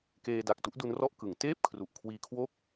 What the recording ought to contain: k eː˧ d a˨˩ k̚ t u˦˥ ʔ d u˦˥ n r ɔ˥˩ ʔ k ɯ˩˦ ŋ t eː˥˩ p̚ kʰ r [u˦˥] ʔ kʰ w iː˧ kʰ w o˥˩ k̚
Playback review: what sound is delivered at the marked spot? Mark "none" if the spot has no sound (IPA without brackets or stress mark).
u˨˩